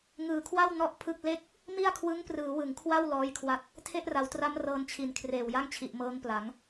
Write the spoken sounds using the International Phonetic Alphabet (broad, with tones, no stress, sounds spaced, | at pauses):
ŋ ɯː˨˩ kʰ w a˥˩ w n ɔ˥˩ ʔ pʰ ɯ˥˩ k̚ l e˥˩ k̚ | m i˥˩ a̯ kʰ w ɯ˦˥ ŋ p r ɯː˩˦ w ɯ˩˦ ŋ kʰ w a˥˩ w l ɔː˦˥ j kʰ w a˦˥ t̚ | tʰ e˥˩ ʔ r a˩˦ w t r a˦˥ m r ɤː˧ n t͡ɕʰ i˨˩ n kʰ r eː˨˩ w j a˥˩ ŋ t͡ɕʰ i˨˩ ʔ m ɤː˦˥ ŋ p l a˩˦ ŋ